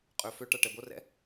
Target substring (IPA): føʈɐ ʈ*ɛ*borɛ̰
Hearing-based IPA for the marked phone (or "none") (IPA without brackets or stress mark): ɛ